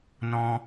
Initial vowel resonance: nasal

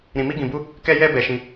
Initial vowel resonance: nasal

